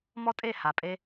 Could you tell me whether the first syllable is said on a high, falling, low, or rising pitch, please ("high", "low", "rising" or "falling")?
high